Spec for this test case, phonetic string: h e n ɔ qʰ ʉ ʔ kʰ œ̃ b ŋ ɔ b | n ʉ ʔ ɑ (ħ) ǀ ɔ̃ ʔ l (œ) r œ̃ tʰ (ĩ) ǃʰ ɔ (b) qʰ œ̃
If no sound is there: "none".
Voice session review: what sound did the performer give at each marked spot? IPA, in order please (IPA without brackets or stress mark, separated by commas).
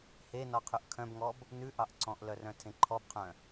ʔ, œ, ẽ, b